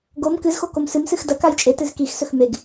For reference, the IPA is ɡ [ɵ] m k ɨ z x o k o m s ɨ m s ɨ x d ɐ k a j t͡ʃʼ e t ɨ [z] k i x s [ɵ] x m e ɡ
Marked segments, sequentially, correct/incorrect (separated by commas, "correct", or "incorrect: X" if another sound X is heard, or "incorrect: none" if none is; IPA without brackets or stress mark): incorrect: o, correct, correct